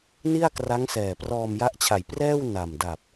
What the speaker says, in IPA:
ni˥˩a̯kra˦˥ŋsɛː˨˩ prɔː˧mja˦˥ʔt͡ɕʰa˨˩j prɛː˥˩wna˨˩mda˨˩p̚

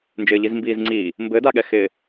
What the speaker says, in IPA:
nd͡ʒɪːʎizmbiːzŋ͡ǀiː | mbɘdaɠɛxɪː

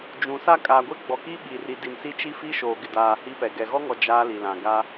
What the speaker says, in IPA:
d͡ʒũ˨sa˦˨ kʼaː˨ɡʷe˦ɡ͡bɔ˨ki˦ ɓi˨ri˨ di˨nsi˦t͡ʃi˦ fi˦ʃoː˨ɡɪ˨daː˨ hi˦pɛ˨ ɡɛ˨ɣɔ˦ŋɔ˨ d͡ʒaː˦li˨lã˨ ɡa˦

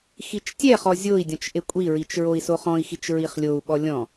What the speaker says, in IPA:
xit͡ʃtʲɛχɔ zʲoi̯dʲɔ̃t͡ʃ ʔekʷʼiɹit͡ʃ ɹoi̯soχɔ̃i̯xit͡ʃ ɹiχlʲou̯ɓɔ lʲɔ̃

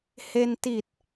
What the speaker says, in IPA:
he˧n ti˨˩t̚

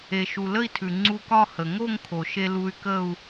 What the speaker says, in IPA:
e˩ʃu˩ lə˥˧i̯tʰʉ˩ ŋ͡ǀu˧kɒ˥˧ hə˩ŋo˥˧ŋkʰo˩ʃe˧ lu˧y̯kə˥˧u̯

